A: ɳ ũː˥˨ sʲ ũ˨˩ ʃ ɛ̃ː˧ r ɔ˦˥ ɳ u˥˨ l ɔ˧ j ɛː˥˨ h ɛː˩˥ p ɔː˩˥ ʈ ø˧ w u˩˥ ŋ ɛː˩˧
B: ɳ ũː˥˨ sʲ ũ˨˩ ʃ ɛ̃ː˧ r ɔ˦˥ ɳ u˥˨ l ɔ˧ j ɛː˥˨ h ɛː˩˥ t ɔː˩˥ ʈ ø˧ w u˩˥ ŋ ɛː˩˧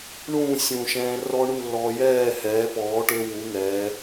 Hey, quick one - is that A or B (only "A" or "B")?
A